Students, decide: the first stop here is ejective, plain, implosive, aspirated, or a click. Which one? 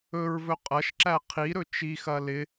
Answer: ejective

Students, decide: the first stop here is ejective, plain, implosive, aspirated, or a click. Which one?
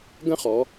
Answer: plain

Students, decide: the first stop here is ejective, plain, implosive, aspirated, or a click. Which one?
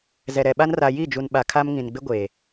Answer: implosive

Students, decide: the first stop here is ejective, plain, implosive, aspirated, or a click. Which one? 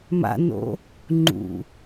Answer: click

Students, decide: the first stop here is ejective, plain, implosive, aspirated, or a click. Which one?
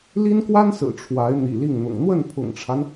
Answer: plain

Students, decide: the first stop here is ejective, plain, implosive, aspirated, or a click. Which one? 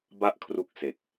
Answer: plain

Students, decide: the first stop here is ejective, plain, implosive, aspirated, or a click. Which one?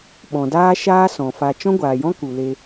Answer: implosive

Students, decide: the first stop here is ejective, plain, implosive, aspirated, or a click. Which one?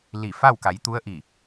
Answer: plain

